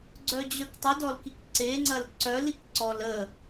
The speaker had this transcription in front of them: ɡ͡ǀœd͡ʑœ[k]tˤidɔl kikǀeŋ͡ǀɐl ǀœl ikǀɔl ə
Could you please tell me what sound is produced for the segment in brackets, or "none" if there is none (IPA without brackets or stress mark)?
k